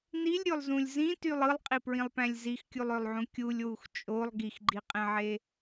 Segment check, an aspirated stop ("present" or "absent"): absent